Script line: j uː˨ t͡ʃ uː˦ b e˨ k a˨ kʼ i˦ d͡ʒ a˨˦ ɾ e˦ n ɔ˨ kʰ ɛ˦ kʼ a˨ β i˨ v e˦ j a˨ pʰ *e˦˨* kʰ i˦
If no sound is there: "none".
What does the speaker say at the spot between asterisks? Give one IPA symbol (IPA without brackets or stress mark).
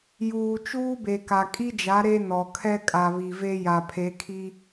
e˨˦